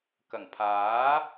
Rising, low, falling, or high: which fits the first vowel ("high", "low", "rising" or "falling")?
low